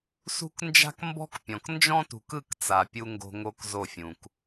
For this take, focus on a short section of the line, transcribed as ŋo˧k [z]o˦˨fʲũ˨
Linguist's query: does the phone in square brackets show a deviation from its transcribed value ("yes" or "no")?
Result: no